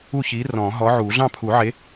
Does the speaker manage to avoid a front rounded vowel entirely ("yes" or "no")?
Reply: yes